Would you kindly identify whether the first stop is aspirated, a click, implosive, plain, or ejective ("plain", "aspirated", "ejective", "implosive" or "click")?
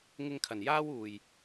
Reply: aspirated